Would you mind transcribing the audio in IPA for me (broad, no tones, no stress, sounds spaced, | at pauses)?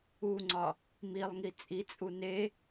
u ŋ͡ǀ ɒ | m i lˠ ŋ i t͡sʼ i t͡sʼ u n e